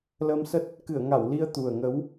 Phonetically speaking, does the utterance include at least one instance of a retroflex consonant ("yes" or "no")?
no